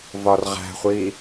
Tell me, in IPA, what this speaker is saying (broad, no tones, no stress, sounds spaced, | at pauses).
v ɒ r ʁ æ̤ χʷ i